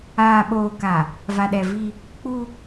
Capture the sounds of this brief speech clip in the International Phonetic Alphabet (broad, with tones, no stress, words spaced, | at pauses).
aː˨ɓoː˨ka˨ | va˨ɗɛ˨vi˦ | k͡pu˦